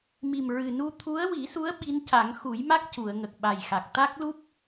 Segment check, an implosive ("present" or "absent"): present